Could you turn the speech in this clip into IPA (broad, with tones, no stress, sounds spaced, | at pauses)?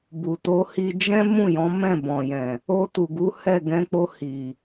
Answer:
b u˨ t o˧ h i˧ d͡ʒ ɛ̃˦ m ũ˦˨ j ɔ̃˨˦ m ɛ̃˦˨ b ɔ̃˨ j ɛ̃˨ | o˧ t u˨ ɡ u˨˦ h ɛ˦˨ ɡ ɛ̃˧ k͡p o˧ h i˨